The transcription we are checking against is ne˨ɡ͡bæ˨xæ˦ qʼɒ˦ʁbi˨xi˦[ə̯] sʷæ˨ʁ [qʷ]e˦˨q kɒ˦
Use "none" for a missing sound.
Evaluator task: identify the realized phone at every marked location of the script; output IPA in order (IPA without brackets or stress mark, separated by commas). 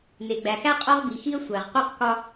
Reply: ə̯, qʷ